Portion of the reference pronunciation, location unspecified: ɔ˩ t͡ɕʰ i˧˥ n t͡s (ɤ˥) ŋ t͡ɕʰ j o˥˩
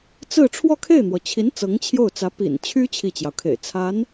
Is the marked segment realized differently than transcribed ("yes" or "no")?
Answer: yes